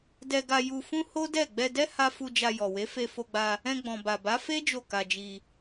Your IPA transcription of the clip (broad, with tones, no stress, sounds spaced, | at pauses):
d ɛ˧ ɡ a˧ j u˧ f ũ˦ h o˦ d ɛ˦˨ ɡ͡b ɛ˧ d ɛ˦ h a˦ f u˧ d͡ʒ a˧ j ɔ˨ w e˨˦ f e˧ f o˧ ɡ͡b a˧ | ɛ̃˧ ɡ͡b ɔ̃˨ b a˨ b a˨˦ f e˦ d͡ʒ o˦˨ k a˧ d͡ʒ i˧